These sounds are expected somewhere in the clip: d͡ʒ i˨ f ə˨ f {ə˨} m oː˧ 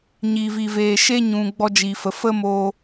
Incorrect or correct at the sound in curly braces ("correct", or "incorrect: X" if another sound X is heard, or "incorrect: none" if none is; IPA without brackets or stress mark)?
incorrect: ə˦